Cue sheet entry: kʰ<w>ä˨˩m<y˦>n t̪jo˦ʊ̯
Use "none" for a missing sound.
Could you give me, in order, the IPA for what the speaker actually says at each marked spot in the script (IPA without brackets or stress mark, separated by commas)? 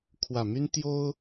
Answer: w, y˦